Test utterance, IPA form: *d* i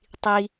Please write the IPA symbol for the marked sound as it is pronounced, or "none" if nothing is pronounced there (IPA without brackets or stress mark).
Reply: tˤ